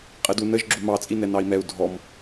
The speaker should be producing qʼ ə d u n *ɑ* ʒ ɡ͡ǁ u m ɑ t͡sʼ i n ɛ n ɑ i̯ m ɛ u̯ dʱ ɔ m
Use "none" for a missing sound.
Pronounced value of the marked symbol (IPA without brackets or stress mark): ə